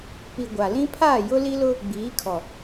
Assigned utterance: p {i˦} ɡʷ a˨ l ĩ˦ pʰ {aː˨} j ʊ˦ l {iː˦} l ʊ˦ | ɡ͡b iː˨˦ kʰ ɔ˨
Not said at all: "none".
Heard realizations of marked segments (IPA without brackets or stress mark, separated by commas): i˨, aː˦˨, i˦